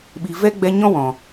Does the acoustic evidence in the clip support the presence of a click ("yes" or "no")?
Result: no